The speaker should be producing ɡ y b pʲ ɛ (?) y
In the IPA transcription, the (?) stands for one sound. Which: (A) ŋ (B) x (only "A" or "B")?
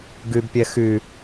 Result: B